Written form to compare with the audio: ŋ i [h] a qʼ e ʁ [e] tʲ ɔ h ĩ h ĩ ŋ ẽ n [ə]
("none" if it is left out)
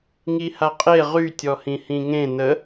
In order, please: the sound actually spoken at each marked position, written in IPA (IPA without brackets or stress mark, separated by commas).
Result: h, y, ə